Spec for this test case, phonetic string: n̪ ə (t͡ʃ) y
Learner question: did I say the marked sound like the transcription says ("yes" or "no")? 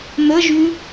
no